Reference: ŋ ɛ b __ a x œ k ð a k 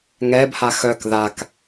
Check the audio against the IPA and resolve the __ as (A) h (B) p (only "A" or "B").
A